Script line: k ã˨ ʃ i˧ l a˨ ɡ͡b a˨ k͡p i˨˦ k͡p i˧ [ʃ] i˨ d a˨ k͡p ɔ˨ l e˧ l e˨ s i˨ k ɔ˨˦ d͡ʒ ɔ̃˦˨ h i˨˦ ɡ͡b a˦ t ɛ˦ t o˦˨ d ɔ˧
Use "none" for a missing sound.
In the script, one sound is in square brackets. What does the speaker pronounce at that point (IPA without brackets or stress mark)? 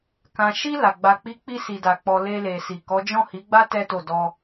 s